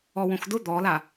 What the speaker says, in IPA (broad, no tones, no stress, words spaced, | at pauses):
ɔwõxdʊ d̪ɔla